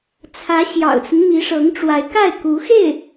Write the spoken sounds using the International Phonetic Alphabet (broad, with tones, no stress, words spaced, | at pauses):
t͡sʰä˧˥ ɕjɑ̰˨˩ʊ̯t͡sə˦n mi˧˥ʂɤ˧˥ŋʈ͡ʂwa˧˥ɪ̯ka˥˩ɪ̯ ku˧˥ xe˥˩ɪ̯